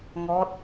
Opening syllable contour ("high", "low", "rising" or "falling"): rising